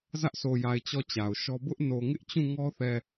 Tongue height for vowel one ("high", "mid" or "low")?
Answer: low